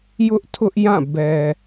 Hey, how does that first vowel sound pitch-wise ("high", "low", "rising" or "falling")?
high